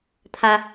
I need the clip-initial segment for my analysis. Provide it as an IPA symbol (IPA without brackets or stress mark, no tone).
t̪ʰ